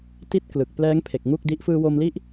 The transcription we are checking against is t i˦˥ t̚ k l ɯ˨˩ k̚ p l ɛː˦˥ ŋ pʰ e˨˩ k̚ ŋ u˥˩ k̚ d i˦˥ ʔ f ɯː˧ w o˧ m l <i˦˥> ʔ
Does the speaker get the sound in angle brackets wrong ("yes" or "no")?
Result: no